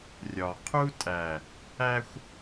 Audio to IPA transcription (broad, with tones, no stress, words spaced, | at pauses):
rʲɒ˨ qʰu˦tʼæ˨ | æ˦xʷ